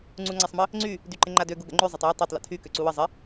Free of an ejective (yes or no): yes